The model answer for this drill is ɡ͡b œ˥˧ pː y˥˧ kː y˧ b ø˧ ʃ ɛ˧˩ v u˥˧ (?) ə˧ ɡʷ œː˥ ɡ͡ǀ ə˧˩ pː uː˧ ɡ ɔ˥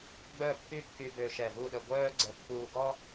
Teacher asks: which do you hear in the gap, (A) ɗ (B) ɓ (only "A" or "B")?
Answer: A